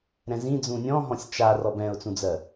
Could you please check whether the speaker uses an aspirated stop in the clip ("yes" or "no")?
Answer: no